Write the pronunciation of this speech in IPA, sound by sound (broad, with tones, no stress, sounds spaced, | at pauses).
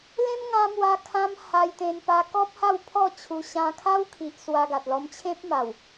l ẽ˦ m ŋ ã˧ m w a˧ kʰ ã˦ m h a˧ j t̪ ẽ˧ n p a˧ k ɔ˦ p̚ h a˥˧ w pʰ ɔ˥˧ t͡ɕʰ u˧ ɕ ã˧ kʰ a˦ w kʰ i˨ ʔ s w a˧ ɡ a˨ t̚ l ɔ˧ m t͡ɕʰ ẽ˦ p̚ m a˨˩ w